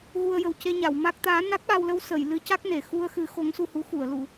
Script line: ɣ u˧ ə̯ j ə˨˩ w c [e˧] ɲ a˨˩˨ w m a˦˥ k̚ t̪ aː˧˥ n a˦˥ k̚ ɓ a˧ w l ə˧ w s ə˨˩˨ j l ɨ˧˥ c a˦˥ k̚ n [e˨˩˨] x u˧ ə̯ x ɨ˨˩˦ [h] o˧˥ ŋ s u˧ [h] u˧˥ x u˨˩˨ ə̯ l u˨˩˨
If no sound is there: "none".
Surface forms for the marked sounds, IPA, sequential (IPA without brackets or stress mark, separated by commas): e˧, e˨˩˨, x, h